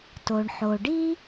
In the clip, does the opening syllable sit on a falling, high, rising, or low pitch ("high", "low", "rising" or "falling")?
low